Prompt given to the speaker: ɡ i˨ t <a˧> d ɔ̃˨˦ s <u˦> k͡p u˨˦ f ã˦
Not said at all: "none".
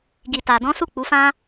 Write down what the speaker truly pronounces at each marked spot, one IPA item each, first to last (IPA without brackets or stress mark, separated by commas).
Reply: a˨, u˦˨